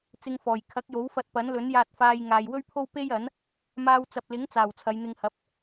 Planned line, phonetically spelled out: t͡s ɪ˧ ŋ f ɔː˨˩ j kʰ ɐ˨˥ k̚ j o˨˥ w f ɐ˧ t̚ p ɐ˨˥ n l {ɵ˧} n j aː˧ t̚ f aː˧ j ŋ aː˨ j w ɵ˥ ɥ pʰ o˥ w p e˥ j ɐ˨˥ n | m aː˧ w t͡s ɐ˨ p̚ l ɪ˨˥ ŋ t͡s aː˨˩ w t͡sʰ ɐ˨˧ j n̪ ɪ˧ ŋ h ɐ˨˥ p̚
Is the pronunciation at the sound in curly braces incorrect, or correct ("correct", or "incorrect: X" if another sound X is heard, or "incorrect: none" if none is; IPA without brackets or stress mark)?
incorrect: ɵ˨˥